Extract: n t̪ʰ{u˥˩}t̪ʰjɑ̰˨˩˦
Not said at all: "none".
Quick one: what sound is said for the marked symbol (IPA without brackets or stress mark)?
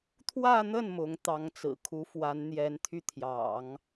y˥˩